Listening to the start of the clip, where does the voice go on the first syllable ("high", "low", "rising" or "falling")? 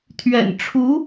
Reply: low